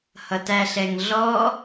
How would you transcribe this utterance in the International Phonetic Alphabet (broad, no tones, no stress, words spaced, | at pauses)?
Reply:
hʌtæɬɛŋɮɔ